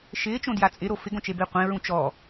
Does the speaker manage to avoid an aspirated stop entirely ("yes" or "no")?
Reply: yes